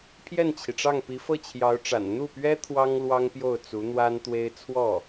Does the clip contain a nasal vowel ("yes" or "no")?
no